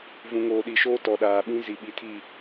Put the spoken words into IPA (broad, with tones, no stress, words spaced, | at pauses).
vũ˨ŋoː˨ɗi˨ʃoː˦ tɔ˨ɗaː˨ɓĩ˦ zi˨ɓi˨tʰi˦˨